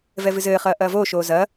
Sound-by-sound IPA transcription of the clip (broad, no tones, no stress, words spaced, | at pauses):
vɛvɨzɘːχɐː ʔɐːvoːʃoː zɐ